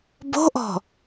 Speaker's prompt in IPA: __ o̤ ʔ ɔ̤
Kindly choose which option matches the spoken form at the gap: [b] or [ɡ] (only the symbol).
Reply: b